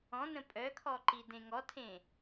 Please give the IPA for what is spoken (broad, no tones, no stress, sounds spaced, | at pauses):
ɔ̃ n ə̃ pʼ œ kʰ ɔ ǃ i d ẽ ŋ ɔ tʰ ẽ